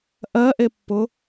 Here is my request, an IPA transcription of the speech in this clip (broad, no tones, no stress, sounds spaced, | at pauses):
ʔ ɜ ʔ e pː ʊ